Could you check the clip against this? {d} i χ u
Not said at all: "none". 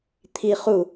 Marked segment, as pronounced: t̪ʰ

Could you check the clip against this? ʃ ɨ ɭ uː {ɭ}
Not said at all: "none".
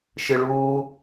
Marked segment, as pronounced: none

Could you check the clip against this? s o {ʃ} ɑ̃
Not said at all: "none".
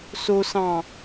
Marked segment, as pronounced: s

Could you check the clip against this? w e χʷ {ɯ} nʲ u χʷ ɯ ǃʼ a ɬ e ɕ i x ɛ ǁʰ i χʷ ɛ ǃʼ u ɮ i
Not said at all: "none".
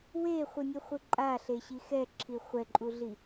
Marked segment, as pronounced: ɯ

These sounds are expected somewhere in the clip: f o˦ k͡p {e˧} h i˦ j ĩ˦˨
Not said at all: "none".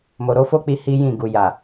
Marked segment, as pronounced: i˧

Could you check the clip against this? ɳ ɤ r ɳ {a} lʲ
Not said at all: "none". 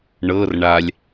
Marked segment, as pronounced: a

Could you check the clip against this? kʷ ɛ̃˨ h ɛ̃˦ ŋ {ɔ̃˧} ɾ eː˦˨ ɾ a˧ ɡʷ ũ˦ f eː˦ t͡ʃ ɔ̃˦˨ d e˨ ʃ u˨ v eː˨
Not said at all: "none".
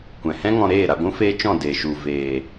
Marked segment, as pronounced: ɔ̃˧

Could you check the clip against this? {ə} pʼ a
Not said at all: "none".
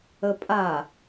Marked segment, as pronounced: ə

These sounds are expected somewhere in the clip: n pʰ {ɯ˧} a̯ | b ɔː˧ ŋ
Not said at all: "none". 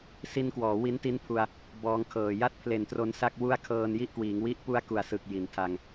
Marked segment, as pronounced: u˧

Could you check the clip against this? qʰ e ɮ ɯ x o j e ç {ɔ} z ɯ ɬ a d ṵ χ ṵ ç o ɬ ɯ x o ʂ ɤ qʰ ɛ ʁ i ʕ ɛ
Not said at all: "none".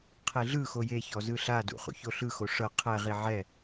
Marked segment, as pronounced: ɔ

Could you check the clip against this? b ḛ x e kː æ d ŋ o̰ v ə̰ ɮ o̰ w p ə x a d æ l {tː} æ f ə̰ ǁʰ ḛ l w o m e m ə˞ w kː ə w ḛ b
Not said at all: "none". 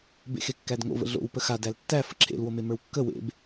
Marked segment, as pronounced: tː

